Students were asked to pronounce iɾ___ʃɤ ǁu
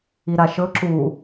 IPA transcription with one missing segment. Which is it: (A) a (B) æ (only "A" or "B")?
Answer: A